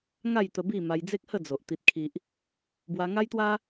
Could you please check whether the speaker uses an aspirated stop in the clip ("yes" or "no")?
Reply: yes